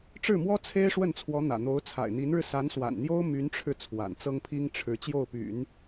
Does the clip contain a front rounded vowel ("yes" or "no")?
yes